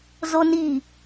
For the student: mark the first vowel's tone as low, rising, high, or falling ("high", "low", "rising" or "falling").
high